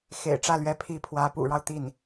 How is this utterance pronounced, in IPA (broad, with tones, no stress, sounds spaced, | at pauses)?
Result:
x ḛ˨˩ ɪ̯ ʈ͡ʂ ä˥˩ l ɥ ɛ˧˥ pʰ i˧˥ pʰ w ä˧˥ p ṵ˨˩ ɻ ɑ˦ ʊ̯ t̪ i˥˩ n